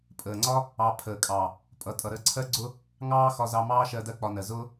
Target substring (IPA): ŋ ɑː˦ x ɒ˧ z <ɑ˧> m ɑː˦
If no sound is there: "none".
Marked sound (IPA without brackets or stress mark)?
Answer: ɑ˧